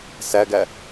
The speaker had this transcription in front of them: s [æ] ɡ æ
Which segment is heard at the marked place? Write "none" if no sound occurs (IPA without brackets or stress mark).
æ